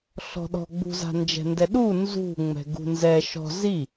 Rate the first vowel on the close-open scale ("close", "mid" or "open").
mid